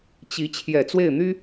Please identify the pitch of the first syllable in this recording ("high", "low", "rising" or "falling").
rising